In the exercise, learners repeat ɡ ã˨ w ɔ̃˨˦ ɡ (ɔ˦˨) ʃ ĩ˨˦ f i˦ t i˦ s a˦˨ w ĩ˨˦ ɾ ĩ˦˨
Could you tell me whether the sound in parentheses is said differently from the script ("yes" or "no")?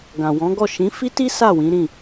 no